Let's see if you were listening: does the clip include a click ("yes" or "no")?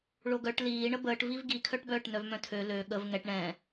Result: no